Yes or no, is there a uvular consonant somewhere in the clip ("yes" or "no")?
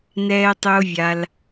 no